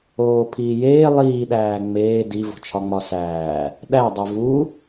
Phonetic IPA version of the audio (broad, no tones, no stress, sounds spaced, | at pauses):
oː pʰ iː j eː lˠ iː ɗ æː ŋ͡m eː d i v o̤ t͡ʃʰ ɒ ŋ͡m ɒ s æː | ɗ æ dˤ e v u